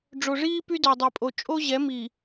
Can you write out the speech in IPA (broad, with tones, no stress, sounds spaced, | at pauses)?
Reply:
ɖ͡ʐ o˨ ʐ iː˦ p y˦ d œ˨ dˤ i˨ pʼ o˨ t͡ʃʼ o˦ ʑ ɛ˨˦ m i˨